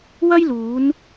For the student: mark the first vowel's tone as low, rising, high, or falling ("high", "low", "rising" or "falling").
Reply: high